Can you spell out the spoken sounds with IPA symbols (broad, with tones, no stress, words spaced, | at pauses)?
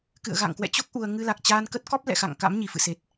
kɨ̰˧˨ə̯ ɣa̰˧˨ŋkwɛ̰˧˨t͡ɕo˦˥k̚ ʔu˧ə̯ ŋɨ˧la˨˩k̚t͡ɕaː˧nkə˦˥t̚ kɔ˦˥p̚lɛ̰˧˨ xa̰˧˨ŋka̰˧˥m ɲi˧˩fɨ̰˧˨se˨˩t̚